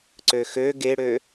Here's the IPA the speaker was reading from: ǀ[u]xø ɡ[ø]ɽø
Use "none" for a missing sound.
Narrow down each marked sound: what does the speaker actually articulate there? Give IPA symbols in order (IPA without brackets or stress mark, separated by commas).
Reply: ø, e